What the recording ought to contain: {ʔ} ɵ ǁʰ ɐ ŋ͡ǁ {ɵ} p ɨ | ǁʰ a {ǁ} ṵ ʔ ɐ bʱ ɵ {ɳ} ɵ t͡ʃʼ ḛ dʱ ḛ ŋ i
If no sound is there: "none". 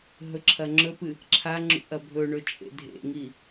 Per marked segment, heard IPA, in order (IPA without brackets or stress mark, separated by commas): ɦ, ɵ, ŋ͡ǁ, ɳ